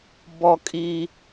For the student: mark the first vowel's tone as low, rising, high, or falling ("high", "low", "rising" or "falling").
high